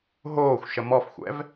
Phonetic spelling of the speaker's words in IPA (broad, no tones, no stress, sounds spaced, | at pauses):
ɦ oː xʷ ʃ ə m ɔ f xʷ ɛ̰ v